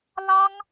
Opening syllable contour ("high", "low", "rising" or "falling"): high